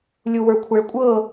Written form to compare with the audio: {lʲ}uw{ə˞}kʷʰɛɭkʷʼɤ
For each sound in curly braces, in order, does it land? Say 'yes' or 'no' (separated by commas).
yes, yes